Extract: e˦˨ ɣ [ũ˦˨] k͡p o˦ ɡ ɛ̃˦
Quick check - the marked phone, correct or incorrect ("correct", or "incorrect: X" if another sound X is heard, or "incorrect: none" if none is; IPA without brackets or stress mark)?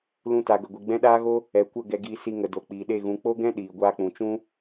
incorrect: ũ˨˦